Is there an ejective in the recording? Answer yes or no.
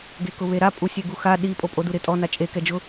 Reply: yes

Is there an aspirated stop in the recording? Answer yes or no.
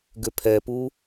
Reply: yes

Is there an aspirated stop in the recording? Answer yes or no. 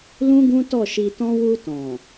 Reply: no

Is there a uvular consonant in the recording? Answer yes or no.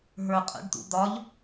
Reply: yes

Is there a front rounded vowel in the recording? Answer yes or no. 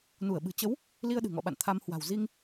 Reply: no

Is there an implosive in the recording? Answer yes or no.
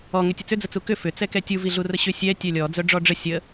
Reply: no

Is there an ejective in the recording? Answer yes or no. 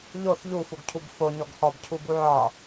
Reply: no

